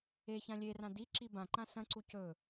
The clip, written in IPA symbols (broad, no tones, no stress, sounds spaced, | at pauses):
e ç ã lʲ e r ã d i ǁ i b ã ǃ ã s ɐ̃ ǀ u c ɵ